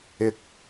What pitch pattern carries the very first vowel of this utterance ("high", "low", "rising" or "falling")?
low